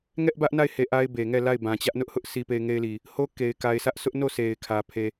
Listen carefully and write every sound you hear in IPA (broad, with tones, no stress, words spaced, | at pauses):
ŋɛ˦ʔbä˦ʔna˦˨ɪ̯he˨ ʔa˦ɪ̯be˨ŋɛ˦˨ la˦˨ɪ̯bã˨t͡ɕä˦ʔnʊ˦ʔ hʊ˦ʔ si˨pe˨ɪ̯ ŋe˦ɪ̯li˨ | ho˦ ke˨ɪ̯ka˨ɪ̯sʰä˦ʔsʊ˦ʔ no˦˨ sʰe˨ɪ̯kʰä˨ pʰe˨